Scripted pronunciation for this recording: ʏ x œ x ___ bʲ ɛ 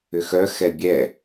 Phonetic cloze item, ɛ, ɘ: ɛ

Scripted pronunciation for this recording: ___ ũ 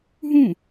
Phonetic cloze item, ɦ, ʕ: ɦ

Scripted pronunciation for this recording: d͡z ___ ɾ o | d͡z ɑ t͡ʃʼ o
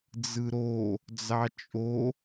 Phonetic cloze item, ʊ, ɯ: ɯ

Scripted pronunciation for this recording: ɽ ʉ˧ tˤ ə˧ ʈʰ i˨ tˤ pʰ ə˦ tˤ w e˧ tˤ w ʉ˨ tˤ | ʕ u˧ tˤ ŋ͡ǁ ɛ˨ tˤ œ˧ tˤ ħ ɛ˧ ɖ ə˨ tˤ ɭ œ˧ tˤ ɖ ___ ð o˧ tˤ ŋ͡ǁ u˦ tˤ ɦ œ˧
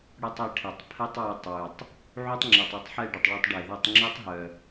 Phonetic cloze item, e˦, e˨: e˨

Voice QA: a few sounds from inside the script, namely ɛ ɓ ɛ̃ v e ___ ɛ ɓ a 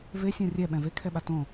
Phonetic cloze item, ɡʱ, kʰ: kʰ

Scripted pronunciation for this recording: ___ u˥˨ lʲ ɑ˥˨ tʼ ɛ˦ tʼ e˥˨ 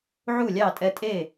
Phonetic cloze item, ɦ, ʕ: ʕ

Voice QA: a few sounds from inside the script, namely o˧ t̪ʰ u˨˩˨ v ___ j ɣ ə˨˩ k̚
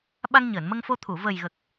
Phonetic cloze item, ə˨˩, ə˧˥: ə˨˩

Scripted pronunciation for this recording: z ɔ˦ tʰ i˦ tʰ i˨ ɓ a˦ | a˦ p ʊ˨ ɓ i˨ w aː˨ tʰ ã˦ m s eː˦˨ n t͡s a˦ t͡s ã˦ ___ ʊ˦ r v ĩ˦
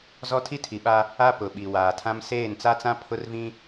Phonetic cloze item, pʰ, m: pʰ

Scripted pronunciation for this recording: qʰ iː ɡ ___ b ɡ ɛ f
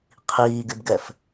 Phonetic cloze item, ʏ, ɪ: ɪ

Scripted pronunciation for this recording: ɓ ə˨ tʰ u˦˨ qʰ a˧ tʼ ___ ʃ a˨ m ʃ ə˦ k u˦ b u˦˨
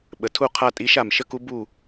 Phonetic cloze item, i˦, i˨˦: i˨˦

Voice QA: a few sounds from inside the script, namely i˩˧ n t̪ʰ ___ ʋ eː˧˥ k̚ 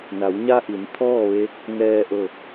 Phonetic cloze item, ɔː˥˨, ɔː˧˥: ɔː˥˨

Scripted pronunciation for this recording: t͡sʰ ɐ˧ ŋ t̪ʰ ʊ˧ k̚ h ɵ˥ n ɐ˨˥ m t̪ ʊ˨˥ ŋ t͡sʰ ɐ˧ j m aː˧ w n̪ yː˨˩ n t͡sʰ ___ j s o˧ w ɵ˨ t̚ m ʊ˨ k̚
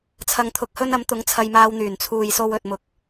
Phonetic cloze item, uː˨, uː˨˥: uː˨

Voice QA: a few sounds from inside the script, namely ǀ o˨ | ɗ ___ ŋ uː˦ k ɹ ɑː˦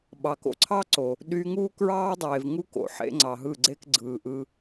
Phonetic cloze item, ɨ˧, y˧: y˧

